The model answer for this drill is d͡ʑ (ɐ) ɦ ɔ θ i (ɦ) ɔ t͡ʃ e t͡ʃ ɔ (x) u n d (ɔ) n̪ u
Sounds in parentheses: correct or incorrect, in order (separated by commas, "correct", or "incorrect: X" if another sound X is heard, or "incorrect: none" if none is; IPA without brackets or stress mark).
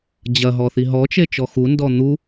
correct, correct, correct, correct